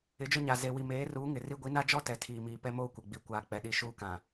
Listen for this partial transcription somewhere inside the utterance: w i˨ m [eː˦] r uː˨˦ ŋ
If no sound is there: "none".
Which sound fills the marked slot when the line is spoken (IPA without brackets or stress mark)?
eː˨˦